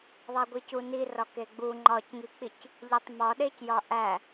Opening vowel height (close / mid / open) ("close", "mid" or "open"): open